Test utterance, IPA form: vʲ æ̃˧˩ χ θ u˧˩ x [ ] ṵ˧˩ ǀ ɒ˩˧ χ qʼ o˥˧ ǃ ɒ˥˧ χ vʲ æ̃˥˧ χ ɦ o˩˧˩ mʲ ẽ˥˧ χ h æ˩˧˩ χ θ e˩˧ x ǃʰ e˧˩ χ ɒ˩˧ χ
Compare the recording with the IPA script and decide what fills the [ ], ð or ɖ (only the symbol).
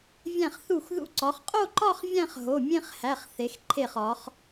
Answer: ð